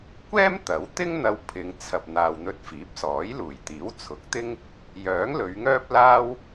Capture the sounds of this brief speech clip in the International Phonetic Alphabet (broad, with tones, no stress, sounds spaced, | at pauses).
kʷ ɛː˥ m t̪ ɐ˨˥ w t̪ ɪ˥ ŋ n̪ ɐ˧ w pʰ ɪ˨˧ ŋ t͡sʰ ɐ˨ p̚ n̪ aː˨ w n̪ ɵ˧ t̚ f iː˨˥ p̚ s ɔː˨˥ j l uː˨˩ j t̪ iː˨˥ w t͡sʰ ʊ˨˥ k̚ t̪ ɪ˥ ŋ | j œː˨˥ ŋ l ɵ˨˧ ɥ ŋ œː˥ p̚ l aː˥ w